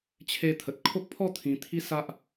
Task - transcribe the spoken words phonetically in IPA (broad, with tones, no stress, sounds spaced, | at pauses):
t͡ɕʰ e˧ t̪ʰ ə˨ t̚ kʰ o˦ k̚ pʰ ɔ˥˧ t̪ʰ ĩ˧ t̪ʰ i˦ s a˦ ʔ